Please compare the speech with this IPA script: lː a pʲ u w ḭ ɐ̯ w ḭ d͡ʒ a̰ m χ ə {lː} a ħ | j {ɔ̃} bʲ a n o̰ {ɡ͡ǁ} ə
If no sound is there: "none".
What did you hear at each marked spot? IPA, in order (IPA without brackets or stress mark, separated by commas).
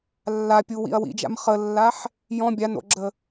lː, ɔ̃, ɡ͡ǁ